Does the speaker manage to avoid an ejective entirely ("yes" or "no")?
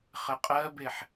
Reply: no